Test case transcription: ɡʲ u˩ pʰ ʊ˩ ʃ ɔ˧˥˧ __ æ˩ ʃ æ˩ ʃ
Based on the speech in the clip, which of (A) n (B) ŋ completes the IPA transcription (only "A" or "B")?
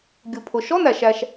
A